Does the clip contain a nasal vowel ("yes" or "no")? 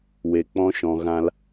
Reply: yes